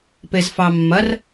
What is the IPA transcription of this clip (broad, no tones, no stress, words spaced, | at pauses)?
pezfɑmːɐr